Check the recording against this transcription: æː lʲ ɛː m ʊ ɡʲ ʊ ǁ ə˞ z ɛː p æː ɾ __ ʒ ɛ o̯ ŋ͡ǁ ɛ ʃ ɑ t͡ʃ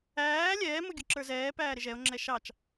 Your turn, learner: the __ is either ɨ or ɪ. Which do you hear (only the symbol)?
ɪ